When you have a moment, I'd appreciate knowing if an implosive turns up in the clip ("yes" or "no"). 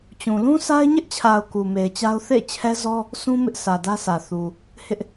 no